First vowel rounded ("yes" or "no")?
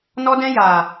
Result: yes